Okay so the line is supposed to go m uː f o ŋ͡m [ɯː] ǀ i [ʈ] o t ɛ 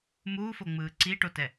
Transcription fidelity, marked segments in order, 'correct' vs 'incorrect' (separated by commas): correct, correct